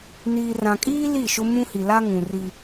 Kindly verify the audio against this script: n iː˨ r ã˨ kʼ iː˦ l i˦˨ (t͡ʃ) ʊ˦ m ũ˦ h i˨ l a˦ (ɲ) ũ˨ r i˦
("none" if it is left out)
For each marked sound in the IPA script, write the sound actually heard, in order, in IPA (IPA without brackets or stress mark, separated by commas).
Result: ʃ, ŋ